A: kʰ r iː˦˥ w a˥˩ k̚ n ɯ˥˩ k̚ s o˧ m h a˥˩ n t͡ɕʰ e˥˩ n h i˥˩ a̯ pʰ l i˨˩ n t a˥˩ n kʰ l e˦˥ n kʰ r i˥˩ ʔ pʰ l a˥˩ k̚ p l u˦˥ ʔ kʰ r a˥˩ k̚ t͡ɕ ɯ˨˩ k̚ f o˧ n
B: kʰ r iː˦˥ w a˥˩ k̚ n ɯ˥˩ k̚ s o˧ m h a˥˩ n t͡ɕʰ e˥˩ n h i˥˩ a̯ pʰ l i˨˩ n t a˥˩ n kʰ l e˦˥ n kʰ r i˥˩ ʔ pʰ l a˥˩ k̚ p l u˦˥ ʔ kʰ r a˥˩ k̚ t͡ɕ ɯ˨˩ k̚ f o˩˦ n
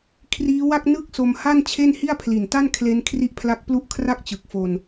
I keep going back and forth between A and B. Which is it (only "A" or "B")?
A